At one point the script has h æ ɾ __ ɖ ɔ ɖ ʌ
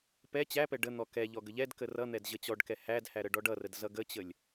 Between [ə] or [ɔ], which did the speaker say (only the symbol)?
ə